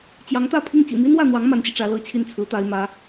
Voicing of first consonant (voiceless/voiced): voiceless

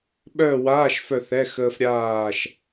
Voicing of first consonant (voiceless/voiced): voiced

